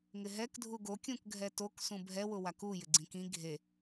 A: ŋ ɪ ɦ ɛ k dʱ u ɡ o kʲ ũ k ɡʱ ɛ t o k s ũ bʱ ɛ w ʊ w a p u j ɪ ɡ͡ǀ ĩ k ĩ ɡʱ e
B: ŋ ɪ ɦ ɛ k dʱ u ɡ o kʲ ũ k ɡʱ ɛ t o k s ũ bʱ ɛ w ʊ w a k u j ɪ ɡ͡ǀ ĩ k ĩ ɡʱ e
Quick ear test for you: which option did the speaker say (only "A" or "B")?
B